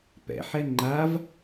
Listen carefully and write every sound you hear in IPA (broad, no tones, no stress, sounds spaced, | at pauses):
p ɛ̰ ħ ɛ ŋ͡ǃ a v